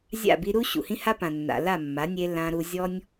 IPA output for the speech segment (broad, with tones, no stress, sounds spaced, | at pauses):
zʲ a̰˦˨ b i˧ ɾ u˦ ɕ ṵ˨ h ĩ˦ h a˦ p ã˨ nː a̰˨ l a˦˨ mː a˨˦ nʲ e˧ l ã˧ ɾ u˧ zʲ ɔ˦ nʲ